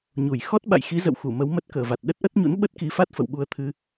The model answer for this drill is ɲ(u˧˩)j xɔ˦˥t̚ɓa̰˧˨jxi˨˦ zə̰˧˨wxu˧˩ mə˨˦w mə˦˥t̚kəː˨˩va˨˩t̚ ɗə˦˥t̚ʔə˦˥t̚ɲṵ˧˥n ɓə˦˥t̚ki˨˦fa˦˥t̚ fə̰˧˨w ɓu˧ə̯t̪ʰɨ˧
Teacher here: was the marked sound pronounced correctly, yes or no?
yes